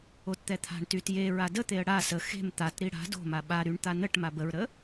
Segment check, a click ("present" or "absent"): absent